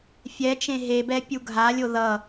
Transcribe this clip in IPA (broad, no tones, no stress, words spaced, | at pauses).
fʲɛ t͡ʃẽɦebɛ pʲuɡʱalʲo ðʌ